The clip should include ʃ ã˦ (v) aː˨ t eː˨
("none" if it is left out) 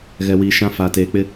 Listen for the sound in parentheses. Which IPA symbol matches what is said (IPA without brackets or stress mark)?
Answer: f